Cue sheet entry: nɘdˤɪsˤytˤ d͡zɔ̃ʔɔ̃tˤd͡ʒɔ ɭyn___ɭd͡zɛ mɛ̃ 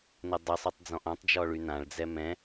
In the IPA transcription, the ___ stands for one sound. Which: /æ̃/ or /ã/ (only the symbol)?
ã